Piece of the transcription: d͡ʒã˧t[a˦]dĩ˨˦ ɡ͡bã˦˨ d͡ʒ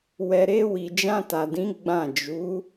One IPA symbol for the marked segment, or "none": a˨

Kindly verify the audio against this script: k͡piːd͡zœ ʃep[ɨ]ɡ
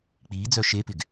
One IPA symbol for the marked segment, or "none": ɪ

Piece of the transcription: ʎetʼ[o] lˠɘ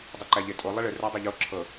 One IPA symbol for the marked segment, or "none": o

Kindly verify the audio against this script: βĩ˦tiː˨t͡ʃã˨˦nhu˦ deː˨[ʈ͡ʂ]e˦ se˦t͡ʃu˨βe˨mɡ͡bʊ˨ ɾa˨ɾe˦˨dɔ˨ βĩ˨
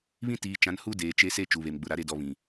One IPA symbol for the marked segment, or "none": t͡ʃ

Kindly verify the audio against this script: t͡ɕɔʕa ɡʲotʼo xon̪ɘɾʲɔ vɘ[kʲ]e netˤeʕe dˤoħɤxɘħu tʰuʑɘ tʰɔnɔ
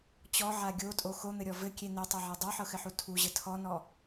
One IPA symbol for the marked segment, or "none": kʲ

